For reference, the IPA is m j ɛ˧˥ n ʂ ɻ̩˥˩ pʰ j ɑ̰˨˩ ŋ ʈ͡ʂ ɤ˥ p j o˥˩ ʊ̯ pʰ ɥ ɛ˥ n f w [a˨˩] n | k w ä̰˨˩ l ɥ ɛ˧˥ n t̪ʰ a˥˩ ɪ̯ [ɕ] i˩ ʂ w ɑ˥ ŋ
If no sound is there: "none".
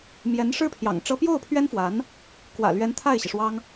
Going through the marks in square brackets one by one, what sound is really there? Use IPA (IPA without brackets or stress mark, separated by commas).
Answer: a˧˥, ɕ